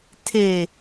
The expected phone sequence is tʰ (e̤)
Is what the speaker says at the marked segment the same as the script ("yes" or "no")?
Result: no